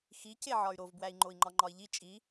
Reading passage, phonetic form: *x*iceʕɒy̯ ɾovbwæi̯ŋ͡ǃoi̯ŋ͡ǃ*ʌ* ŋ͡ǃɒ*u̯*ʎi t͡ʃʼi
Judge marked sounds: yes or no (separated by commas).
yes, no, no